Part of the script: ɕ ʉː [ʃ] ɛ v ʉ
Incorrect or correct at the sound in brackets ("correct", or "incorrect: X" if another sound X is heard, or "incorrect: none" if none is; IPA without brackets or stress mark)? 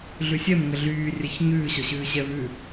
incorrect: ɕ